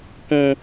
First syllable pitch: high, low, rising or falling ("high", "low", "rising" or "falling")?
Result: low